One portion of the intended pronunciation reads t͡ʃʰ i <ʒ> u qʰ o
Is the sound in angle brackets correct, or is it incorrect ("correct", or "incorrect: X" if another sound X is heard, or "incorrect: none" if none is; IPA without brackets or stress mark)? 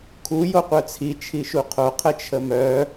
incorrect: ʃ